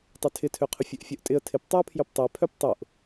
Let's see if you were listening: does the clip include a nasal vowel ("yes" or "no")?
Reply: no